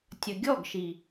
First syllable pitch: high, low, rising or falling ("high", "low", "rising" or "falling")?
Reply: low